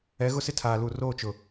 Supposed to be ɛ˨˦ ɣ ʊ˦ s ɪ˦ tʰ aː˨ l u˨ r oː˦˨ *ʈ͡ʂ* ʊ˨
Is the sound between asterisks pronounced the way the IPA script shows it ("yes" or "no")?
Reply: no